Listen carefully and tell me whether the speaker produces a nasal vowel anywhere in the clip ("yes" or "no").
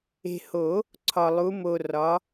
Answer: no